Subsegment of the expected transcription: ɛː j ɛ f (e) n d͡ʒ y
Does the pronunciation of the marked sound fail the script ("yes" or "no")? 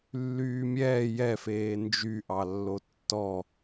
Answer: yes